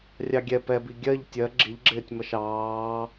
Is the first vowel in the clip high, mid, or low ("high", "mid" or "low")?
low